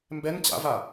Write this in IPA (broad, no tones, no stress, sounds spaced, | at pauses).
m b ɛ n t͡ɕ a̰ v a